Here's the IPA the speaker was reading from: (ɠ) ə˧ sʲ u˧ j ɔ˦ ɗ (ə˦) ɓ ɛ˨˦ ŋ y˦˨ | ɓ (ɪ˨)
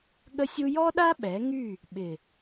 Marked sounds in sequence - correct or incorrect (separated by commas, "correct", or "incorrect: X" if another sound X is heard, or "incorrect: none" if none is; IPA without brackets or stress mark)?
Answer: correct, incorrect: a˦, correct